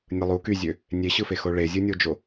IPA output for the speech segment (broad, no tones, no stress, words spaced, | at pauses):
nʲɯlˠu kyzʲø | nʲeɕɯfexo ɭezʲɯnʲod͡ʒo